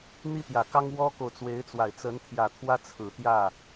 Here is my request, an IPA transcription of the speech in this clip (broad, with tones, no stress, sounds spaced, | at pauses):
n̪ i˥ t̪ j ä˨˩ k ɑ˥ ŋ w ɔ˥ k o˨ ʊ̯ t͡s w e˧˥ ɪ̯ t͡s w a˨˩ ɪ̯ t͡s ə˧˥ n t̪ʰ j ä˨˩ t̪ʰ w ä˥ t͡sʰ ɹ̩˨˩ t̪ j ä˥˩